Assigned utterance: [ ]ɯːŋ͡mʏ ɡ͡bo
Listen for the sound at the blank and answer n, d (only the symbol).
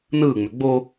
n